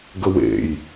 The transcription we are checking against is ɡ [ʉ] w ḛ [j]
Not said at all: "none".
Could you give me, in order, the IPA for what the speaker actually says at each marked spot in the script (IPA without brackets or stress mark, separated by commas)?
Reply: ə, j